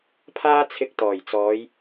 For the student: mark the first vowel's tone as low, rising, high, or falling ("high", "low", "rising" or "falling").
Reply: high